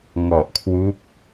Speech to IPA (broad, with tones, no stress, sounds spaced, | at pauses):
ŋ ɔ˨˩ ʔ kʰ w u˦˥ k̚